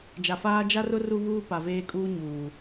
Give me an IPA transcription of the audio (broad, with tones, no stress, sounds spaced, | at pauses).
d͡ʒ a˨ f aː˦ d͡ʒ a˦ r ʊ˦ r u˦ β uː˦ p a˨ v eː˦ kʼ uː˦ ɲ uː˨